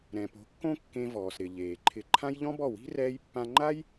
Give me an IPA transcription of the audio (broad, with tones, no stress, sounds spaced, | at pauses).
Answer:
ɾ ɛ̃˨ p o̤˨˦ kː õ˦ kː ẽ˧ v ɔː˨ s ɾ ɪ˨ ʎ eː˨ ǃʰ ɪ˧ ǃʰ ã˦ j ʎ ɔ̃˦ b ɔ˦˨ w i̤˦ r ɛː˦ j pː ã˧ ŋ͡ǃ a˦ j